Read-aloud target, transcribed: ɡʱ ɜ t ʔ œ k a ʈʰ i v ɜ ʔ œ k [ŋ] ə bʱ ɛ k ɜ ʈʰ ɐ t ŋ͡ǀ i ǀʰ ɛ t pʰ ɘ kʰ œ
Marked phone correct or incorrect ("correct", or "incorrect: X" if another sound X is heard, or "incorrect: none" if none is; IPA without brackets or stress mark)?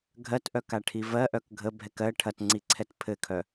incorrect: ɡʱ